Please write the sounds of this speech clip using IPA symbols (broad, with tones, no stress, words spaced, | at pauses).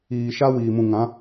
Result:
iː˨ ʃa˦wiː˨ mũ˨ŋã˨˦